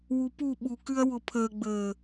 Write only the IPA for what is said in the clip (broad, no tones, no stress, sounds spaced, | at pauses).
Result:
w u p u ɓ u k ʉ ɐ̯ w ʊ pʰ əː ɡ͡b əː